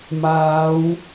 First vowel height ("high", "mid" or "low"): low